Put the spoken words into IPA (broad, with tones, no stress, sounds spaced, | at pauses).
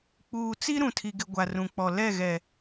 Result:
k͡p uː˨ t͡s i˦ ɾ ũ˨ tʰ i˨ ɡ ɪ˨ ɡʷ a˨ r ũ˨ k͡p ɔ˨ l ɛ˦˨ ɣ ɛ˨